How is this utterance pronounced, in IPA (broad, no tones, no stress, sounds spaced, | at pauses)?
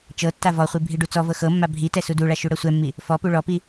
t͡ʃ ɤ tː a v ɔ χʷ i bʱ i ɖ u t͡s ɔ v ɤ x ɤ mː a bʱ i t ɛ s u d u ɭ a ʃ u ɽ ɤ sʷ ɛ mː i | f ɔ p u ɭ ɔ p i